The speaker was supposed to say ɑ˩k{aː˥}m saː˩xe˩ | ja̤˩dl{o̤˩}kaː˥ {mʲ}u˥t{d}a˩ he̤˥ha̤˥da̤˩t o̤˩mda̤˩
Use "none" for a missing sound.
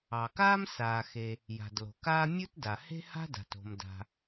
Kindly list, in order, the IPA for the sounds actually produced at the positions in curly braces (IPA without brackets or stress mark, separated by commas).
aː˥, o̤˩, mʲ, d